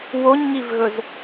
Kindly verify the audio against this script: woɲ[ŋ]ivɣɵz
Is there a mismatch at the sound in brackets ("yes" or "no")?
no